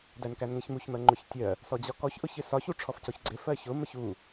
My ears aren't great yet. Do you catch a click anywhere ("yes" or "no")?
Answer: yes